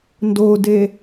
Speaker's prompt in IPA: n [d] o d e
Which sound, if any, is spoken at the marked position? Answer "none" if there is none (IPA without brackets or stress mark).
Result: d